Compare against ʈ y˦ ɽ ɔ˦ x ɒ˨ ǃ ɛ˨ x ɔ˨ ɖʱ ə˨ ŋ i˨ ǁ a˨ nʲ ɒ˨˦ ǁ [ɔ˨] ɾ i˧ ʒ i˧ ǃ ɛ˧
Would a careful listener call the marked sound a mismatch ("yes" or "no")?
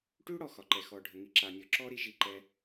yes